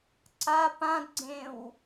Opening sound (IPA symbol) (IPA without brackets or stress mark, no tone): ǀ